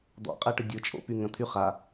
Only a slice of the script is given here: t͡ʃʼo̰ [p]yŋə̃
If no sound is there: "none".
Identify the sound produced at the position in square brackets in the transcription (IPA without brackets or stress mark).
p